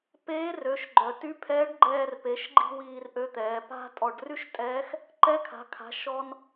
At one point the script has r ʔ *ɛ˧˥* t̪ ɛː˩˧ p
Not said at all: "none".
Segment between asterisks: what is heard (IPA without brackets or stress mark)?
ø˧˥